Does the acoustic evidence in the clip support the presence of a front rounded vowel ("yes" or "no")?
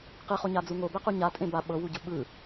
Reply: no